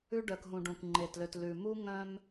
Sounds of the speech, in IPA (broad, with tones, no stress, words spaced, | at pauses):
ʉ˦ɖœ˨k ɦũ˨ɖũ˨kŋ͡ǃe˨tlø˨t lʉ˨ mu˦ŋœ̃˦m